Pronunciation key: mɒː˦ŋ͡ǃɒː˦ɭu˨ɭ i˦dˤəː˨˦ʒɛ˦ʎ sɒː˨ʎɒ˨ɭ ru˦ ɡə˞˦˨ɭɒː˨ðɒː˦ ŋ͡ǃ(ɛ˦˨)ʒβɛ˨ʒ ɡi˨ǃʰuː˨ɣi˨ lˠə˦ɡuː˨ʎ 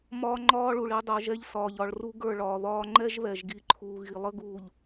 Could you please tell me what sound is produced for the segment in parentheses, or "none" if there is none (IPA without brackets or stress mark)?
ɛ˦